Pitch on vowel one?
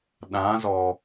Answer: rising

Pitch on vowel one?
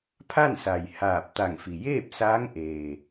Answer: falling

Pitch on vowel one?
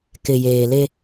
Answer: low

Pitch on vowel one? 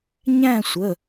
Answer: falling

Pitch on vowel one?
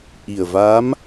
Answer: low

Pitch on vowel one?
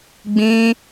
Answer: high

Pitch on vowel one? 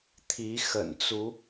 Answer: rising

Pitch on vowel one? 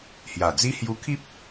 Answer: low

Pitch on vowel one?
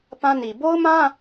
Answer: high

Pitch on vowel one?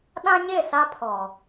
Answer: high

